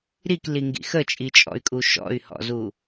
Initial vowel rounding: unrounded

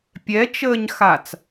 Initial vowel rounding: unrounded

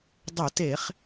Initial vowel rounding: rounded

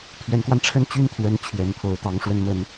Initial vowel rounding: unrounded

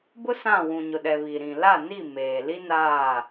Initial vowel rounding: rounded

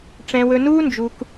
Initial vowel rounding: unrounded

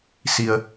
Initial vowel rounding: unrounded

